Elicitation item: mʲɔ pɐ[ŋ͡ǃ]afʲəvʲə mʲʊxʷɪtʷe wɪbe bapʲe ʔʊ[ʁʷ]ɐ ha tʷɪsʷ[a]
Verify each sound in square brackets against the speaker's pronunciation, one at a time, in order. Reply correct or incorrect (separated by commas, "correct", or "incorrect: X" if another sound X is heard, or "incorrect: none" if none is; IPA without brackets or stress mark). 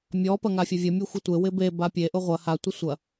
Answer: incorrect: ŋ, correct, incorrect: ɐ